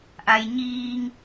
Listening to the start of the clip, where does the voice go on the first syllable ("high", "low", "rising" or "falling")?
low